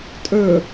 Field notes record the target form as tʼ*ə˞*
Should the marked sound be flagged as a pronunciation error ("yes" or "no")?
no